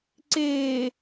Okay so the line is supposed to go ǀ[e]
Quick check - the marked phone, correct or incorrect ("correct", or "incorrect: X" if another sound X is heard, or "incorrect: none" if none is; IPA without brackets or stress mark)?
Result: incorrect: eː